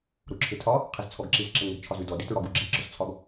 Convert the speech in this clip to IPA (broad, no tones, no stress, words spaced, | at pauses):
ɾuǁʰɪtʰɒ | qʰizt͡sʰɔɡǁiz ǁɪŋɪɡ t͡ʃʰɒzʉdɔ ditɹɒɡu ɡ͡ǁi ɡ͡ǁɔzt͡sʰɒɡ